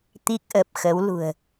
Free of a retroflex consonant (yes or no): yes